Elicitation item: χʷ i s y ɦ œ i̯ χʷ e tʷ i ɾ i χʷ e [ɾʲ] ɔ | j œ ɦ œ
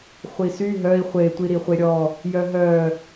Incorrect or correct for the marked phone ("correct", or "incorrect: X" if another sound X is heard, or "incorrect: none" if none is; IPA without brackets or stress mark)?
correct